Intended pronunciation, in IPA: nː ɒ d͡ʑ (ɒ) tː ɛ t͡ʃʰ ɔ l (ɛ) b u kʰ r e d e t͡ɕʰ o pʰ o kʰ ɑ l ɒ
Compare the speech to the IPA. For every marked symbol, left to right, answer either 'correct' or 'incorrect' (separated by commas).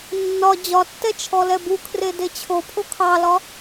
correct, correct